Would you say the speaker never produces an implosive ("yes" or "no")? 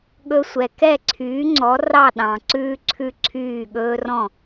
no